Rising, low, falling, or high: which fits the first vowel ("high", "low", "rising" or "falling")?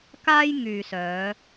high